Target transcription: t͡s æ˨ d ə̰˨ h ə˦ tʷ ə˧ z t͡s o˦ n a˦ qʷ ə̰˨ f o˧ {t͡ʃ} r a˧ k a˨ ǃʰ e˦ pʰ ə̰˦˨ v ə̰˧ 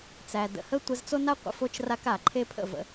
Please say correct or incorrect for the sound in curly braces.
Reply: correct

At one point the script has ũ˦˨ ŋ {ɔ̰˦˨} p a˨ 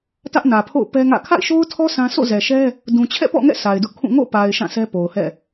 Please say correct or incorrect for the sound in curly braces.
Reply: incorrect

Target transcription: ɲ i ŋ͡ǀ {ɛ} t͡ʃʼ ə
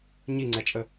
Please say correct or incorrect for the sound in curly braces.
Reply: correct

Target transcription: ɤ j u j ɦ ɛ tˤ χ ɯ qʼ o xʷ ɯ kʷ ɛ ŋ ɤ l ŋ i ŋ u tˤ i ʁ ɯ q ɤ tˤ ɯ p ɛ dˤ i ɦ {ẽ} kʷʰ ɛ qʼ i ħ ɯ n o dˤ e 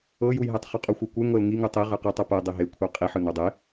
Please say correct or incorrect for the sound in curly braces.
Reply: incorrect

